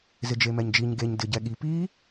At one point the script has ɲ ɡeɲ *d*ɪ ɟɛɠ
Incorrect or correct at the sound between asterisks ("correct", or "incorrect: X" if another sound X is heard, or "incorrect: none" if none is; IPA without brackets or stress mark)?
correct